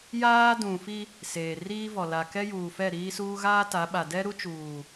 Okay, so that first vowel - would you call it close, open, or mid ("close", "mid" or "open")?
open